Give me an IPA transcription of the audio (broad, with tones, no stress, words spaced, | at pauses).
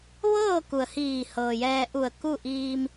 ʋɤː˥˨ ku˩ə̯hiː˧˩hɤː˩ jɛː˧ʔu˧˩ə̯ ku˥˨ ʔiː˧m